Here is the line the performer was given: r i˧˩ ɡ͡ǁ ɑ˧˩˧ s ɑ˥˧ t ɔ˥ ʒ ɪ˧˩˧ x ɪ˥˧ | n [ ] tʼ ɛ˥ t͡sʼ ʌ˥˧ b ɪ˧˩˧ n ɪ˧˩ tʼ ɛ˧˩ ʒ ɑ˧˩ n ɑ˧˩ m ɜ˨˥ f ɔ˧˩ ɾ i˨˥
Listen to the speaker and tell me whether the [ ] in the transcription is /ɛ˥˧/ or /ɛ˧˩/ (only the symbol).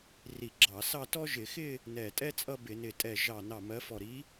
ɛ˧˩